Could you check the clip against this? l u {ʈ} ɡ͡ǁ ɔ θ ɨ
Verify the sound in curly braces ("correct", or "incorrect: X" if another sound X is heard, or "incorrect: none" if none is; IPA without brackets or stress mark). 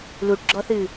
correct